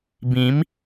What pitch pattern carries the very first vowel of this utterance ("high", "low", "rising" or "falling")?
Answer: rising